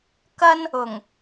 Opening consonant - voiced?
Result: no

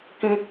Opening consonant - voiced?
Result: no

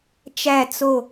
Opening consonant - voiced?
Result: no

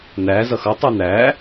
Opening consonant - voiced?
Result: yes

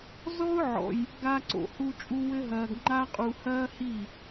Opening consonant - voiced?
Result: yes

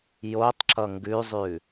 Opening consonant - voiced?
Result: yes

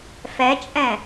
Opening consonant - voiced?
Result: no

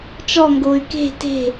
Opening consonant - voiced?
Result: no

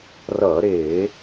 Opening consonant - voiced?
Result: yes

